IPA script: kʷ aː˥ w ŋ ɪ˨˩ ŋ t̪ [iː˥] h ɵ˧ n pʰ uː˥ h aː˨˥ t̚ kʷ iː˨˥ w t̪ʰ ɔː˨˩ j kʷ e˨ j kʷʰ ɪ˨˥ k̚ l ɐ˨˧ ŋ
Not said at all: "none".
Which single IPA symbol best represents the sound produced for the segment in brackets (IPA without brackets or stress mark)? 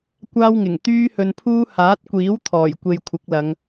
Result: yː˥